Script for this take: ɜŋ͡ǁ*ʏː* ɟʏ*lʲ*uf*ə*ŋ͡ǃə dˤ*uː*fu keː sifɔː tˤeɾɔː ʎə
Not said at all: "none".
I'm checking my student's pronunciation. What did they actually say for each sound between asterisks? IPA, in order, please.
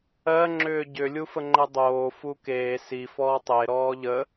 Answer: ʏː, lʲ, ə, oː

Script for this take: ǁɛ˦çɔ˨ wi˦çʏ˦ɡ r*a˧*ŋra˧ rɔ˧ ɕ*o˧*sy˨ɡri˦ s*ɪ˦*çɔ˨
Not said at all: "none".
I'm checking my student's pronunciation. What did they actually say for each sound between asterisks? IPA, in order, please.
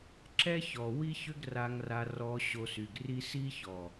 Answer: a˧, o˧, i˦

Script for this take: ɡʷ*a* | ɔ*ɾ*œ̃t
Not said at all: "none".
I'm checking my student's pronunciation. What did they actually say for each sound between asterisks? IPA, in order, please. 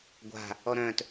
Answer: a̤, ɾ

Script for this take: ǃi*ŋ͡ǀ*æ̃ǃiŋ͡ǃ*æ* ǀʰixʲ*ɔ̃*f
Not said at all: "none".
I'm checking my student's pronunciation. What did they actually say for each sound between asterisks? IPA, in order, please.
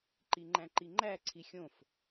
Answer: ŋ͡ǃ, æ, õ

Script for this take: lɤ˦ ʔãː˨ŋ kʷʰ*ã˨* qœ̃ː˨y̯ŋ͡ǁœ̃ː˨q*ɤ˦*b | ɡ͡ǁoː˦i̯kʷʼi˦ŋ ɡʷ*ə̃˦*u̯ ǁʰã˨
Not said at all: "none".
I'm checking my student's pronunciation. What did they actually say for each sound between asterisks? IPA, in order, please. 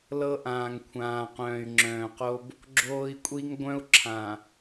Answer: ãː˨, o˦, œ̃˦

